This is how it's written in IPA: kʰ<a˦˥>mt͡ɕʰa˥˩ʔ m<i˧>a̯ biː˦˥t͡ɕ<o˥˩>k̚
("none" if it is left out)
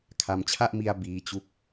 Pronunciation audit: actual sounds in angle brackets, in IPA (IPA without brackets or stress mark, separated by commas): a˧, i˧, u˥˩